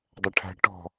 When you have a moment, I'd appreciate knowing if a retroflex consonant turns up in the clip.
yes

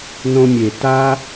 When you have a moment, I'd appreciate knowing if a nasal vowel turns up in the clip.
yes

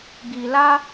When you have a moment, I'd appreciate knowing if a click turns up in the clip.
no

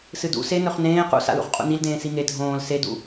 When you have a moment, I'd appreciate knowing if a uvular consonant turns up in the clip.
yes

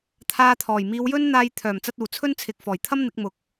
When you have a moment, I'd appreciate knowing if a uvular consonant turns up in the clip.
no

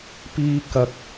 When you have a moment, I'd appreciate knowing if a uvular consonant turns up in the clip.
no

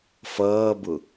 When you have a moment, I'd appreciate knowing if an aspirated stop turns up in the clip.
no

